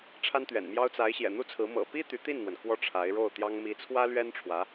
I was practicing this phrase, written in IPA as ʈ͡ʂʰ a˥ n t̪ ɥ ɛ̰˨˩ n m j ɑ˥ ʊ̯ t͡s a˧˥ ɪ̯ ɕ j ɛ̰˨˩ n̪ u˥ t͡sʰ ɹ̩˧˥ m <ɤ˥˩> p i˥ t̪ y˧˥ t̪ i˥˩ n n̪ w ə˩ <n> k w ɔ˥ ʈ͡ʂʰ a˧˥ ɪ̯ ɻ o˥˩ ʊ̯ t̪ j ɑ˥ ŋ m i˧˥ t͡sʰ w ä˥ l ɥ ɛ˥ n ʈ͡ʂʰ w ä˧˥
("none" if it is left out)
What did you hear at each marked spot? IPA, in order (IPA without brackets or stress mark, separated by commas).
ɤ̰˨˩, n